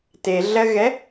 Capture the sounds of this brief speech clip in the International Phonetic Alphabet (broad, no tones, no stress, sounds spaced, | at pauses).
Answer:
t e ɮ ɜ ɣ ɛ